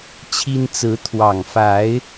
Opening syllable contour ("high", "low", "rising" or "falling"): high